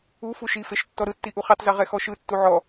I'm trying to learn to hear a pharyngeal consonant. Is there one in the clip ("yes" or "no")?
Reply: yes